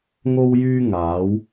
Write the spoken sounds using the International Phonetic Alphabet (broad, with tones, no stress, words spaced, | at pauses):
ŋo˥wjyː˥ ŋaː˨˥w